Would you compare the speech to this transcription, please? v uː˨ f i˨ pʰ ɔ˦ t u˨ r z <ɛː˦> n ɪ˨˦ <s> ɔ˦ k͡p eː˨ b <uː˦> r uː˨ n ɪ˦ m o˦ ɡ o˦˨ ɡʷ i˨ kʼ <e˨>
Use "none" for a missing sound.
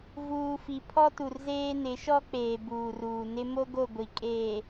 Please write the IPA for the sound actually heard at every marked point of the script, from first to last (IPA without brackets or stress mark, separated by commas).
eː˦, ʃ, uː˨, eː˨